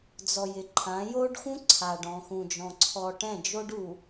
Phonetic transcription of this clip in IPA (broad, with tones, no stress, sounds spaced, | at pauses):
d͡z ɔ˨ j ɪ˨ ǃʰ ã˨˦ j o˦ ɖ x ũ˦ ǀʰ a˨ ɖ ɔ̃˨ x ũ˨ d͡ʒ ɔ̃˨ ǀʰ ɔ˨ ʈ ɛ̃˦˨ d͡ʒ o˦ ɖ u˨